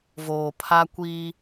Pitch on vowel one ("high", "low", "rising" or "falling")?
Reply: low